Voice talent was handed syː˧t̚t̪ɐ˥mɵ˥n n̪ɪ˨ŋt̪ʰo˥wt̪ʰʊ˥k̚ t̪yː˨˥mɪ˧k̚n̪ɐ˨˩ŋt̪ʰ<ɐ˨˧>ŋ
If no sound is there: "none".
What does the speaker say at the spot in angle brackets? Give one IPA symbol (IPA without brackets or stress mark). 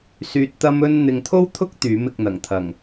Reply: ɐ˨˩